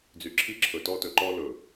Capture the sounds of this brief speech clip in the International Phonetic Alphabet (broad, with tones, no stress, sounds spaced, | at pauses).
d͡z y˨ ǁʰ i˦ ǁʰ ɵ˨ t ɔ˦ t ɵ˨ ǃ ɔ˦ l ɵ˨